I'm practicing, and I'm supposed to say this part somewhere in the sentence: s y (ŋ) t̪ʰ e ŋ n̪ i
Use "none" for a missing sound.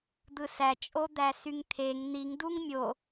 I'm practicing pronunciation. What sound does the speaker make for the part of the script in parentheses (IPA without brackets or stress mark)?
ŋ